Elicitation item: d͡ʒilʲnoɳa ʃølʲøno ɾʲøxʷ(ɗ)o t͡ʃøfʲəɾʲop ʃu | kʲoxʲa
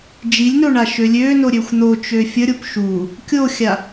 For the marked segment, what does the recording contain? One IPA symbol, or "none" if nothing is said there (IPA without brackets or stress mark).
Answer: n̪